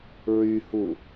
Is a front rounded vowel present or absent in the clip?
present